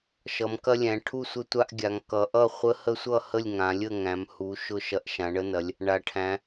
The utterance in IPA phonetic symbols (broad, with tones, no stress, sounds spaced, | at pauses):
ʃ ʌ˩˧ m k ɐ˦ lʲ æ̃˩˧ ʈʰ u˥˩ sʷ ə˦ tʷ a˦ ʔ ɡʲ a˩˧ ŋ k ʌ˩˧ ʔ ʌ˥˩ χʷ ə˦ h ə˦ sʷ ʌ˥˩ h ə˥˩ lʲ ŋ ã˩˧ lʲ ə˥˩ ŋ æ̃˩˧ m h u˩˧ ʃ ʊ˥˩ ʃ ɐ˦ ʔ ʃ ã˩˧ ɳ ə˦ n ɐ˩˧ lʲ | ɳ a˩˧ ʈʰ æ̃˩˧